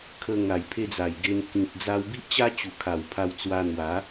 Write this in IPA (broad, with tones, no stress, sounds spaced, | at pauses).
kʰ ə˧ ŋ a˨˩ j pʰ e˦ d͡z a˨˩ j ɡ e˧ n k ĩ˨ t̚ d͡z a˧ w b i˦ ʔ t͡ɕ a˦ t͡ɕ u˨˩ kʰ a˨˩ w pʰ a˧ w t͡s w a˧ n̪ w a˨˦